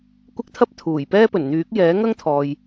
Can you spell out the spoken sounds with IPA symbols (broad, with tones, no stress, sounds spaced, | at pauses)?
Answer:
kʷ ɪ˥ k̚ t̪ʰ ɐ˥ p̚ t̪ʰ uː˨˩ j p ɛː˥ p ɵ˨˩ n n̪ yː˨˥ k̚ j ɛː˨˥ ŋ ɐ˥ ŋ t̪ʰ ɔː˨ j